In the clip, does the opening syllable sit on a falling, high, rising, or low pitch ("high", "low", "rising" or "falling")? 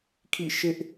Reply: falling